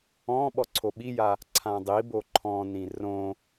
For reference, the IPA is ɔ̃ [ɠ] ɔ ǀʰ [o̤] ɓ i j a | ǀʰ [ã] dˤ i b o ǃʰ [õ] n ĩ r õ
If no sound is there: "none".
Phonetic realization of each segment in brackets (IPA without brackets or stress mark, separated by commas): ɓ, o, ã, ɔ̃